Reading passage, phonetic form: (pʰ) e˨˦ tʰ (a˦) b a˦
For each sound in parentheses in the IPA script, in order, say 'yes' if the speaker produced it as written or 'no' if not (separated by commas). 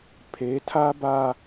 yes, yes